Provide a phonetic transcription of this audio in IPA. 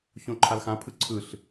ç õ ǃʰ a l x ã pʰ ɯ ǀʰ ɯ ɬ

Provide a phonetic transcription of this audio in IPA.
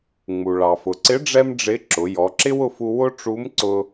ŋ͡m u˩ ɭ ɑ˩ f ʊ˩ ǀ ɪ˧˥ ɖ͡ʐ ɛ˥ m ɖ͡ʐ ɪ˧˥ ǁ ʊ˩˧ j ɔ˩˧ ǁ ɪ˥ w ʊ˧ f u˧ w ʊ˥ ʈ͡ʂ u˧˥ m ǀ ʊ˧

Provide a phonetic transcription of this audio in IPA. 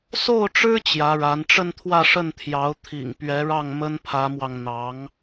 s o˥˩ ʊ̯ ʈ͡ʂ ɻ̩˥ t͡ɕ j ä˧˥ ɻ a˧˥ n ʈ͡ʂ ə˥˧ n t̪ʰ w ä˥˧ ʂ ə˥˩ n t̪ʰ j ɑ˧˥ ʊ̯ t̪ʰ ḭ˨˩ ŋ p ɥ ɛ˧˥ ɻ ɑ˥˩ ŋ m ə˥ n pʰ ä˧˥ m w ɑ˧ ŋ n̪ ɑ˧˥ ŋ

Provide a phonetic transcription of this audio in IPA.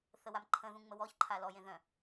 θ ə w a m ǃʰ ə̃ ð ũ ŋ͡m ə w ɔ ç ǃʰ a l ɔ j ẽ ð œ̃

